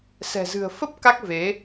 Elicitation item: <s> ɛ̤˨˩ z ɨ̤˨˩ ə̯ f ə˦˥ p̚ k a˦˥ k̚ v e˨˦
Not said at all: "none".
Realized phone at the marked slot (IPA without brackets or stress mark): s